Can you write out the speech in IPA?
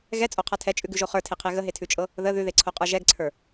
ɣɛt͡sʼoqʰa tʰɛt͡ʃʼʉɡʉʒo χə˞tʰeqʰe ɣəɦetʰʉt͡ʃʼɤ | ðə ðʉðeǀʰoqʼə˞ ʒɛɡǀʰə˞

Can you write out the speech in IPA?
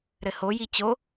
ɾɘhoji t͡ɕo

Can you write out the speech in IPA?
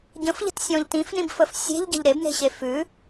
ɟə̃fʎə̤tsʲɔ̃ʎ tĩfnĩbfəf sʲe̤ʎɟə̤ʎ ɾebne̤ɕe fʉ

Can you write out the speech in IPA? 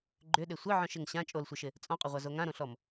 ɡ͡ǃʏɗɪ sʷɪʕɔ̃ʃɪŋ ɕã t͡ʃʼolsʷɪʃɪ | t͡sʼɔ̃qʼʏʁʷazo ŋãɾõɬɔm

